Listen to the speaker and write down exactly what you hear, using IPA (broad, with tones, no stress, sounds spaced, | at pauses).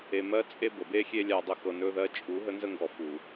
e˨ m ɜ˦ t͡sʼ e˦ b ə˨ b e˦ xʲ e˦ lʲ a˨ dˤ ə˨˦ x ɤ˨ n ɵ˦ ð ɜ˦ t͡ʃʼ u˨˦ ɦ ə˦ n z ə˦ ŋ ɡ ɔ˨ f u˨